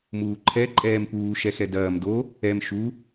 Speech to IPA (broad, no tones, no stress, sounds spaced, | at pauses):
m uː ǃʰ ɛ ǃʼ ɛː m p uː ʃ ɛ x ɛ d ɐː m d o | ɛ m ʃ u